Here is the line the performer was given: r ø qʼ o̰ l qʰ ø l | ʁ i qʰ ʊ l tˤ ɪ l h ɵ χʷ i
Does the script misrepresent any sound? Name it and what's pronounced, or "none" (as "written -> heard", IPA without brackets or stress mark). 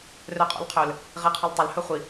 ɵ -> œ